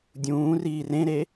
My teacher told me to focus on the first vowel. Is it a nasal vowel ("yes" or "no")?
yes